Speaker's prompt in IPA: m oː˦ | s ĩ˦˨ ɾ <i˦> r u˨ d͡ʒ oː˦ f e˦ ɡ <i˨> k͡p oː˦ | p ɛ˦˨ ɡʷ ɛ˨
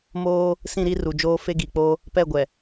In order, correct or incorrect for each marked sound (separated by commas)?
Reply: correct, correct